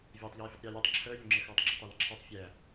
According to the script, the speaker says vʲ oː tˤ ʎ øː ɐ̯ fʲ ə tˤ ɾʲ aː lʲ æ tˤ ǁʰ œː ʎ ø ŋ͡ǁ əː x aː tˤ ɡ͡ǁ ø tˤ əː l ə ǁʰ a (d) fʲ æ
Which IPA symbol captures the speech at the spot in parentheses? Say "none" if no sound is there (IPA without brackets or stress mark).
tˤ